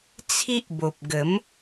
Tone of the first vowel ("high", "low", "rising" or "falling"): high